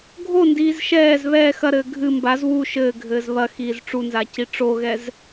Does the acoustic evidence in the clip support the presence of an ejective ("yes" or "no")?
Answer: no